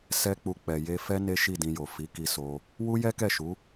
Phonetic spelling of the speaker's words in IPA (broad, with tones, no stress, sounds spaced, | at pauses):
s ɛ˦ k͡p u˧ k͡p ɛ˨ j e˧ f ɛ˦ n e˦ ʃ i˦˨ d ĩ˧ j o˨ f i˨˦ k i˧ s o˧ | w u˦ j ɛ˦ k ɛ˦˨ ʃ u˨˦